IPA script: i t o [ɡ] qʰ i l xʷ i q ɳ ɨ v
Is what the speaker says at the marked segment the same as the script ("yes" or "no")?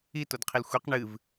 no